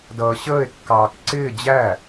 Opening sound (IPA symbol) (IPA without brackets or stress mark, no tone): d